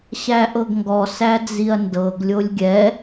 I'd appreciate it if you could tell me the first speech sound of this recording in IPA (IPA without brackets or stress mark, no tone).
ɕ